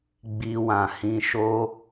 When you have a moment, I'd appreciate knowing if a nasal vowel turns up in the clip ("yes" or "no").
yes